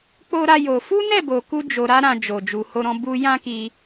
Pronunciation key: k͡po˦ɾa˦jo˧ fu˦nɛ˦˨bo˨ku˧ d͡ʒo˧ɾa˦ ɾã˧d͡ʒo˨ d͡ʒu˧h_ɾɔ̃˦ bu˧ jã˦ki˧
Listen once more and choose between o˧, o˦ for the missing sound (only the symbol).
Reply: o˦